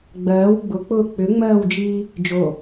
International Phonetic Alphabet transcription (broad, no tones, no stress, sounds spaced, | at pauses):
ɡ͡b ɜː w ɡ͡b ʊ k͡p ʊː k͡p ʏ ŋ͡m ɜː w d͡ʒ iː | d͡ʒ o